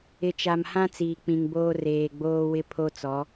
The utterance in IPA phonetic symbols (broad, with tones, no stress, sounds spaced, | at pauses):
ɪ˨ t͡ʃ a˨ m h ã˦ t͡s iː˨ k͡p ĩ˨ ŋ b oː˦ r eː˨ ɡ͡b oː˦ w ɪ˦ pʰ o˦ t͡s ɔ˨˦